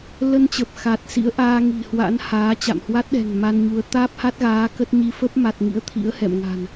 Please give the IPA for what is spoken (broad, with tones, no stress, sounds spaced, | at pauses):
l ə˧ n t͡ɕ ə˨˩ p̚ x a˨˩ t̚ s ḭ˧˥ ə̯ ʔ aː˧ ŋ i̤˨˩ h w a̰˧˥ n h aː˨˦ t͡ɕ a̰˧˨ m h w a˦˥ t̚ ɗ ɛ̤˨˩ ŋ m a˧ n ɲ u˨˦ ə̯ t̪ aː˦˥ p̚ h a˦˥ t̚ ɣ aː˨˦ k ə˦˥ t̚ ɲ i˨˦ f ə˦˥ p̚ m a˨˩ t̚ ŋ ḭ˧˥ ə̯ t̪ʰ ḭ˧˥ ə̯ h ɛ̰˧˨ m ŋ a̤˨˩ n